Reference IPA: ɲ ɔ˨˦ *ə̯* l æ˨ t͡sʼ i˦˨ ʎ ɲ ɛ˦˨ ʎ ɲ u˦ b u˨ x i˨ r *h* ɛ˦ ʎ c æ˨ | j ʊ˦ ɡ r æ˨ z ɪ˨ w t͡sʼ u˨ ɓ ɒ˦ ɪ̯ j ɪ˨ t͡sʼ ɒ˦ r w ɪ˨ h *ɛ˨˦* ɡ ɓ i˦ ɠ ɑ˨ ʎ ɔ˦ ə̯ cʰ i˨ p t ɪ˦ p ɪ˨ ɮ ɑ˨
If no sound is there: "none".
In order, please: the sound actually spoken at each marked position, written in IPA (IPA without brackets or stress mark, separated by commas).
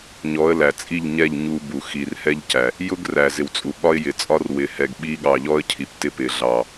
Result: ə̯, h, ɛ˨